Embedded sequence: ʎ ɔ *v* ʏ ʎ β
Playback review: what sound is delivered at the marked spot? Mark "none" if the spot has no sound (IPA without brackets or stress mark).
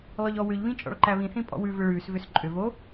w